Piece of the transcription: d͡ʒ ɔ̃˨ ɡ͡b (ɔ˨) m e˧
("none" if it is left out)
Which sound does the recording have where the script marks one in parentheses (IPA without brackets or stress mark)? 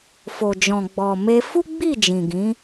ɔ˨